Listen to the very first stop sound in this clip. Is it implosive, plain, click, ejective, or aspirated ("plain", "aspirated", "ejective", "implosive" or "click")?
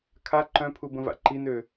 aspirated